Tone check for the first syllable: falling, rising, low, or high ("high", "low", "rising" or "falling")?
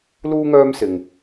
high